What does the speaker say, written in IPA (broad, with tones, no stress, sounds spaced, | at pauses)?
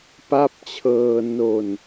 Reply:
p a˦˥ p̚ t͡ɕʰ ɤː˧ n o˧ n